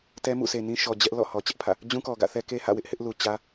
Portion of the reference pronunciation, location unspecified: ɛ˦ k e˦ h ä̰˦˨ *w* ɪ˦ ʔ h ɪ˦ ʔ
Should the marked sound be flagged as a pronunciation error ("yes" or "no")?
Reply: no